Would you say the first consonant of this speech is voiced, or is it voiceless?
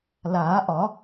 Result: voiced